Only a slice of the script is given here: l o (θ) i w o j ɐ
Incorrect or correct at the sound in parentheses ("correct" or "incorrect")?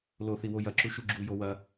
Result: correct